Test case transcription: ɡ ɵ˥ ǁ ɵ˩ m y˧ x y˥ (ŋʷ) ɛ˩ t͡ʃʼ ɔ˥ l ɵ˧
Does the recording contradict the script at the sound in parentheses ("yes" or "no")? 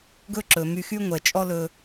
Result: no